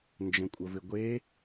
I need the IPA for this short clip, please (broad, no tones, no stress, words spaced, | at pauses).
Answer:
nd͡ʒə̃kʷʼəvɪɡʷe